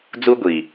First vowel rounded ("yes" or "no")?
yes